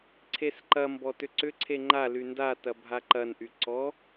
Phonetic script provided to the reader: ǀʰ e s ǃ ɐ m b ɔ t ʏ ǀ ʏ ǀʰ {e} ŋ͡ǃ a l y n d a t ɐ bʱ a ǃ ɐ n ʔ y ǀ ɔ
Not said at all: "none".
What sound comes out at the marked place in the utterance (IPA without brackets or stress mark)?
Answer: e